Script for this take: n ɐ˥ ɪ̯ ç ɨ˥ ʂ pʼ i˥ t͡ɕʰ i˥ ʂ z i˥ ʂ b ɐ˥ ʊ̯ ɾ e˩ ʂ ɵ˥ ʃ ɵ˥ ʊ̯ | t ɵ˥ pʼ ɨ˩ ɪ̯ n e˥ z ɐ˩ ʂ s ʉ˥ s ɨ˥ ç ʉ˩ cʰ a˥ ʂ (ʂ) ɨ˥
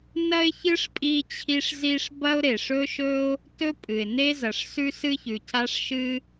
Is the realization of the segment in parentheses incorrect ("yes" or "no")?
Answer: yes